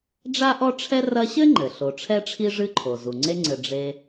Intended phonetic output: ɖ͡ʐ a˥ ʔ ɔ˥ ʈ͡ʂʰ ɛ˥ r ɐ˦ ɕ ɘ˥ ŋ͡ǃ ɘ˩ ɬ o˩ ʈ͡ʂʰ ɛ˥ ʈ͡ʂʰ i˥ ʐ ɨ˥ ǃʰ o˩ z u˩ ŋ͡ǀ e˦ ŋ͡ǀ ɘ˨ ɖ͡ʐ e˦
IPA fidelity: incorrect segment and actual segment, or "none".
none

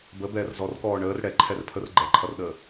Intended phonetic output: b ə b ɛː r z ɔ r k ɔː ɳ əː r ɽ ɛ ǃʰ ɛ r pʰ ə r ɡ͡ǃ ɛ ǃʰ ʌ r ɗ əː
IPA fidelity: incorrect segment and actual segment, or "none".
none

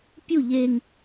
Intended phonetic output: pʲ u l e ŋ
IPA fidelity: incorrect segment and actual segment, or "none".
l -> ʎ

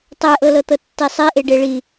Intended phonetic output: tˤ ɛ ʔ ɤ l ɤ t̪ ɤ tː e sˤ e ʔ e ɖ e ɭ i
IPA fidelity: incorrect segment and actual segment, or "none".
none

